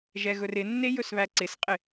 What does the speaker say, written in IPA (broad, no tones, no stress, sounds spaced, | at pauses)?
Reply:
ʒ ɛ ɣ ɵ r ɪ nː e j ɵ s β æ ǀ ɪ s qʼ ɪ